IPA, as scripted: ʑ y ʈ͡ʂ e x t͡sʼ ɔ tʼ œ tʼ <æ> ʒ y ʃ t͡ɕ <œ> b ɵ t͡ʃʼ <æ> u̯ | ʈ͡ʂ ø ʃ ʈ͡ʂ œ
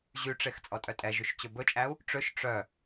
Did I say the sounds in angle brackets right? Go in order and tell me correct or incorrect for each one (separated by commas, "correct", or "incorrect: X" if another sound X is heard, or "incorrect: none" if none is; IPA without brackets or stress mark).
incorrect: ɛ, incorrect: ɵ, correct